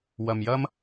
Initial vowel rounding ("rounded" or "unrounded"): unrounded